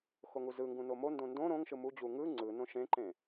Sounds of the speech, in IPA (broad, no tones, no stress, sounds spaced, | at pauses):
x o ŋ u z ɯ ŋ ɡ ũ n o m o n d õ n d õ ɾ õ ŋ ʃ ɯ m u d͡ʑ u ŋ ɯ ŋ͡ǀ ɯ n õ ʃ ẽ ǃ ẽ